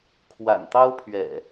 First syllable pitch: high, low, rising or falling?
low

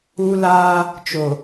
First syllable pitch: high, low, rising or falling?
high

